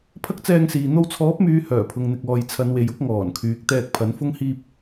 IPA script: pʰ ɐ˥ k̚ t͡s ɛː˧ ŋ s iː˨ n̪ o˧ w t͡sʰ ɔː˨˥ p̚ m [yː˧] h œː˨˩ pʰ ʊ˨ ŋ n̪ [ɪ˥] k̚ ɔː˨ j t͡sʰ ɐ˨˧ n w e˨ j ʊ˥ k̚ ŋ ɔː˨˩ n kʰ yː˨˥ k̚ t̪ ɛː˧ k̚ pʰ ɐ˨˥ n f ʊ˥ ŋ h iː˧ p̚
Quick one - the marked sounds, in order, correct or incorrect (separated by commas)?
incorrect, incorrect